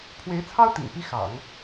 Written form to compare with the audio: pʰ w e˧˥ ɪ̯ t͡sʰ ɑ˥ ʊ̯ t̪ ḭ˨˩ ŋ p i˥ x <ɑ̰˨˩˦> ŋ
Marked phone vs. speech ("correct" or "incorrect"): correct